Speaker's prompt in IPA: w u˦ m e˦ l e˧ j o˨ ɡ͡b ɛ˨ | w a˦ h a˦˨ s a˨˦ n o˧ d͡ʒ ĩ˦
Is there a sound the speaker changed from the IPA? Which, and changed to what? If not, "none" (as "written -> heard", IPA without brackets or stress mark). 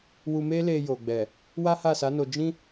u˦ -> u˧